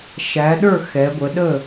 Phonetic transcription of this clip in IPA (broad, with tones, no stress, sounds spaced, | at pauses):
ʃ æ˨˦ ɗ ə˞˥˨ x ɛ˨˦ ɡʷ ə˨˦ ɗ ə˥˨